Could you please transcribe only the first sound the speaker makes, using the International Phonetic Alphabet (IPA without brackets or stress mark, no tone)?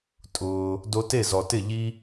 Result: tʼ